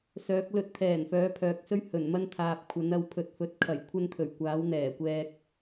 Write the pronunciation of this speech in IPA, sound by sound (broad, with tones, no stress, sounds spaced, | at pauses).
s œː˨˥ k̚ l ɵ˧ t̚ t̪ʰ ɛː˨˩ n f œː˨˥ pʰ œː˨˥ k̚ s ɵ˥ ɥ h ɵ˨˩ n m ɐ˥ n t̪ʰ aː˨ p̚ kʷʰ ɐ˨˥ n ɐ˨˧ w pʰ ɵ˨˥ t̚ f ɵ˨˥ t̚ kʰ ɐ˨˩ j kʷʰ ɐ˥ n t̪ʰ ɵ˨˩ ɥ kʷ aː˨˥ w n̪ ɛː˨˩ kʷ ɛː˧ k̚